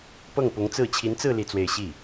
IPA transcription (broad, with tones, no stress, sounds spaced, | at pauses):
p ɤ˥˩ ŋ p ʊ˧˥ ŋ t͡s ɹ̩˥˩ t͡ɕʰ i˧˥ n t͡s ɹ̩˥˧ l i˥˧ t͡s w e˥˧ ɪ̯ ɕ i˥˩